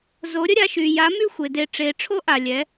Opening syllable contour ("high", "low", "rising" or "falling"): rising